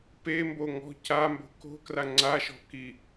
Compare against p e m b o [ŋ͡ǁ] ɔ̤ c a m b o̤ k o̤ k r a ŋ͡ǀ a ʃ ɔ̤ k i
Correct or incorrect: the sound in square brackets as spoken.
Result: incorrect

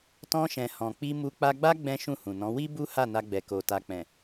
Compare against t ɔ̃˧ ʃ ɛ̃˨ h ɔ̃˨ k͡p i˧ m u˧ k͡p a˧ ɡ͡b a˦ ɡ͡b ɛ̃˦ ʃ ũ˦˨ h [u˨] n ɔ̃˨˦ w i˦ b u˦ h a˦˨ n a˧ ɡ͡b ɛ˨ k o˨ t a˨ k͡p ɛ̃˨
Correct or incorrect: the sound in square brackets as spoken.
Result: incorrect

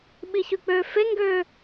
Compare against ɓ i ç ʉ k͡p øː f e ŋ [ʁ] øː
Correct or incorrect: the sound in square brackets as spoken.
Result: incorrect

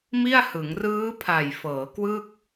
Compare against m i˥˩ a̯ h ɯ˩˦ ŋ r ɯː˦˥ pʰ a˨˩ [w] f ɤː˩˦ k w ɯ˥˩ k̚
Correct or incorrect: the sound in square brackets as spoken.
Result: incorrect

